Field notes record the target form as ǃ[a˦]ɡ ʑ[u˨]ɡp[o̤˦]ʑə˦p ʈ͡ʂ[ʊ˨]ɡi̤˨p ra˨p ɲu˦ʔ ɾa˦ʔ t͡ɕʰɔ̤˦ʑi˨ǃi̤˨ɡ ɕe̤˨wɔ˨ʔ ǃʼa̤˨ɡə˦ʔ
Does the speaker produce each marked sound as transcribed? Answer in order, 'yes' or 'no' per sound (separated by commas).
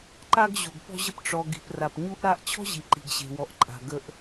yes, yes, no, no